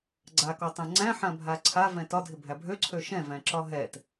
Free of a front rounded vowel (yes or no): no